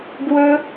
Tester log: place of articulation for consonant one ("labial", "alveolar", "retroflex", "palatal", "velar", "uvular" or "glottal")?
velar